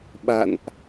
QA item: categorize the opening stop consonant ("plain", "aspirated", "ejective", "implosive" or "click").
implosive